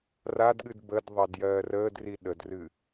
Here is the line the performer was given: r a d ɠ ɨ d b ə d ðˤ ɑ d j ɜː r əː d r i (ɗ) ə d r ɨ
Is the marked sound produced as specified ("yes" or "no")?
yes